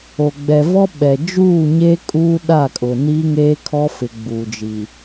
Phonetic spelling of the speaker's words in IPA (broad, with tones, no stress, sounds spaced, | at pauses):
o˨ ɡ͡b ɛ˨ v ɔ˦ ɓ ɛ˨ d͡ʒ uː˦˨ ɲ e˦ kʼ uː˦ ɗ a˦˨ kʼ ʊ˨ n iː˦ ŋ eː˦ kʰ ɔ˦ f ɪ˨ ɡ͡b uː˨ d͡ʒ i˨